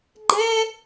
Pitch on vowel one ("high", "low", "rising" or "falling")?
high